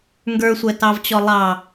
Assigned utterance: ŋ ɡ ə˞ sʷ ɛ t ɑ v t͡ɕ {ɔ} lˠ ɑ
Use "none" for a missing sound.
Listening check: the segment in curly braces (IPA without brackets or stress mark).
ɔ